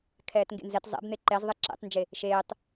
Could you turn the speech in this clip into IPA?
kʰɛːtŋɡḛnzɛt zˤɛ̰b n̪eǃɛzðˤe ǁḛtˤnd͡ʒe | ʃeːtˤ

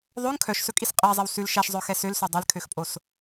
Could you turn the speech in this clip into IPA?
ðˤɵŋ kʰœʃsɵkʼis qʼæzˤɛw sʉl ʃæʃzˤœxɛ sølsø dˤɛlkʰøxpʼos

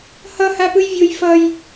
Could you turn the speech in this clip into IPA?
hʌ hapɯjvʲoj fʌj

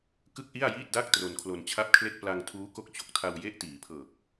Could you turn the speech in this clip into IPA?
kɯ˥˩k̚ʔi˥˩a̯jiː˥˩t̚da˥˩k̚ tro˧nkʰlo˧nt͡ɕʰa˥˩p̚kʰle˥˩k̚ pla˧ŋtʰuː˦˥ko˦˥k̚ t͡ɕo˨˩k̚tʰa˧wje˦˥ʔ tiː˩˦pʰɤː˨˩k̚

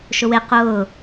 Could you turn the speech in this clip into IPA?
ʃʊwe qʊː

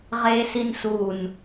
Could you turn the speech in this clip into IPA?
ʁe sinsun

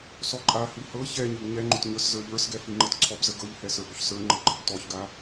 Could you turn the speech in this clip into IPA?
sɔǃʼahi hɤ çɛɲəb ɲɛŋ͡ǃʏt ɲə˞szə˞ʎə˞sɡɛ fiŋ͡ǃɤtǀʰɔbzə ɡɤʎhɛ sə˞bɵçsə˞ŋ͡ǃɤ ɡ͡ǃəbtɔçɡa

